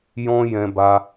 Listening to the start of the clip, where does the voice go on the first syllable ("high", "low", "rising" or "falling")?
high